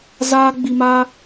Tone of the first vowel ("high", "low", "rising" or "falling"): high